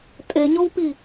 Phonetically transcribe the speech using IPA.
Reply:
tʼ e ɲ o w p i

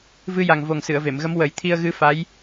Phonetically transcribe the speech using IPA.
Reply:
v ɨ˧ j a˨˩ ŋ v o˨˩ ŋ s ɨ˨˩˨ ə̯ v e˨˩˨ m ɣ ə˧˥ m w ə˨˩˦ j t̪ʰ i˧ ə̯ ɣ ɨ˧˥ f a˧˥ j

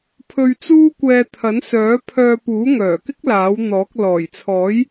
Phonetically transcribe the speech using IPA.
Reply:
pʰ ɵ˧ ɥ t͡s uː˥ kʷ ɛː˧ t̪ʰ ɐ˨˥ n s œː˨˥ pʰ œː˧ p uː˨˥ ŋ œː˨˩ k ɪ˥ k̚ l aː˨˥ w n̪ ɔː˨˥ k̚ l ɔː˨˩ j t͡sʰ ɔː˨˥ j

